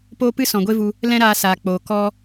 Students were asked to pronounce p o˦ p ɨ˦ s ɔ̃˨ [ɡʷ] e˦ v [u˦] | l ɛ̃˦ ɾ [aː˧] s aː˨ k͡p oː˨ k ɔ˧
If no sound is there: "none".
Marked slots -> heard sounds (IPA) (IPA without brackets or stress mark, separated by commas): ɡʷ, u˧, aː˧